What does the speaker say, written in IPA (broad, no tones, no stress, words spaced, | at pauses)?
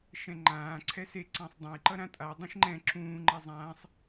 ʃɛ̃ŋ͡ǃãː ǀʰɛse ǀãsˤdˤãj ǃʌɾãtʼa dˤũʃŋ͡ǃɛ̃ ǁũː ŋ͡ǃɛzˤãːsˤ